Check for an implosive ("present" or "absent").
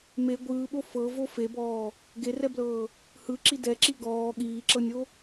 present